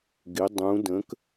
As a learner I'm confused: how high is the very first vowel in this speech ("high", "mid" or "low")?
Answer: high